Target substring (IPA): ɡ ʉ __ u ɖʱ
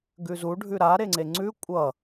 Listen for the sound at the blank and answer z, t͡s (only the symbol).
z